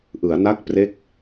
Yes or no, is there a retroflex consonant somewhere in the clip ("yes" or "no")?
no